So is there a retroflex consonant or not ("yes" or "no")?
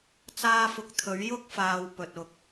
no